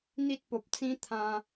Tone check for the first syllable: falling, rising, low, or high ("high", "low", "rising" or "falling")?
high